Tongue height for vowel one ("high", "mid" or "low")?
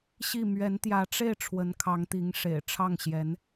high